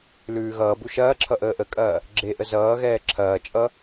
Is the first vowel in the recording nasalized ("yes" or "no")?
no